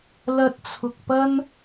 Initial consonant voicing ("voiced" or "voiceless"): voiced